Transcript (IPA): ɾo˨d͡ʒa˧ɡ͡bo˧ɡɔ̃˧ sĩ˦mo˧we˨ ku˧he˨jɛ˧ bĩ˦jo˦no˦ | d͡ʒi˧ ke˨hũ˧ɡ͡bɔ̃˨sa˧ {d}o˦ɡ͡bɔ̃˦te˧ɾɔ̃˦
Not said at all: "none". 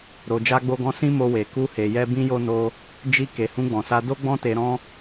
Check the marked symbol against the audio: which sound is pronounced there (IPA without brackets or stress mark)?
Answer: d